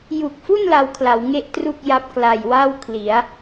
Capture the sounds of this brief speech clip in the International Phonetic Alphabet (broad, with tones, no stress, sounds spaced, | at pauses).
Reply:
j u˨˩ k̚ f u˥˩ n l a˧ w kʰ l a˩˦ w ŋ e˥˩ ʔ t r u˥˩ k̚ j a˦˥ p̚ k l a˨˩ j w a˥˩ w kʰ l i˩˦ a̯